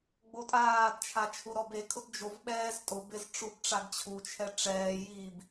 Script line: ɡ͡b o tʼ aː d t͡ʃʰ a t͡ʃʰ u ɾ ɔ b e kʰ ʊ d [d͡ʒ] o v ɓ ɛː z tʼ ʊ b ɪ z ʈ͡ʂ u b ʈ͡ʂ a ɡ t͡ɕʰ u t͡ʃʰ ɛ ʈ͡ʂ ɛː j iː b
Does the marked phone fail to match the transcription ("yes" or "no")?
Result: no